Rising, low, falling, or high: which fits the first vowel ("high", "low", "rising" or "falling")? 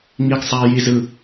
low